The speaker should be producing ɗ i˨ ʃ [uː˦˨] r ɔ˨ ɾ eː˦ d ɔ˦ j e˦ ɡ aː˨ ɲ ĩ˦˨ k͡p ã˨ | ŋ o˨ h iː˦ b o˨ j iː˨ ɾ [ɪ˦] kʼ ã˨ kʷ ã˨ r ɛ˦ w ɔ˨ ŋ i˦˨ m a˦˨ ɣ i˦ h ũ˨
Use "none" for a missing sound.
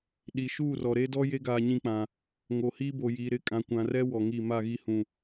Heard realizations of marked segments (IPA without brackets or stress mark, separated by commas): uː˦˨, ɪ˨